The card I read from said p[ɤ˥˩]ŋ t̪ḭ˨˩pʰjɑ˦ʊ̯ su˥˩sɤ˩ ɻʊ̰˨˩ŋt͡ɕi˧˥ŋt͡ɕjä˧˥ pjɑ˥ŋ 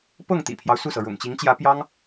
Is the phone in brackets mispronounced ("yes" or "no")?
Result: no